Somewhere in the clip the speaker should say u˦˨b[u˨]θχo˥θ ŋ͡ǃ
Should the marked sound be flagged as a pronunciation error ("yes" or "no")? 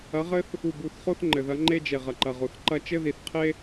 yes